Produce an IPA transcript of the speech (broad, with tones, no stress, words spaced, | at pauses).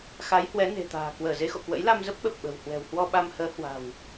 xa˨˦jhwɛ˨˦ ne̤˨˩t̪a̤ː˨˩ kwəː˧˩ze˨˦xo̰˧˨kwə̰˧˥j la˧mzə˦˥p̚ɓə˨˩p̚ ɓə̤˨˩whwɛ̤˨˩w hwɔ˧ɓa˧mhəː˨˦ hwa̤˨˩w